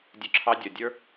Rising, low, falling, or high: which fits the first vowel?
high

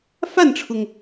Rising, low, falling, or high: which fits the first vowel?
falling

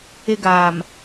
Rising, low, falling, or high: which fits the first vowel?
high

